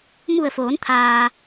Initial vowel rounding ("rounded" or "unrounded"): rounded